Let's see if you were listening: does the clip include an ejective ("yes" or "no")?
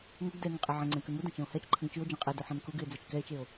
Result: yes